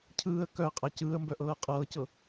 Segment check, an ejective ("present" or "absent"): present